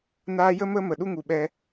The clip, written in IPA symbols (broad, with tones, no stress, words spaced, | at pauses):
naː˦ jə˦mə˦ mə˨ɗu˦ŋu˨ɓɛ˧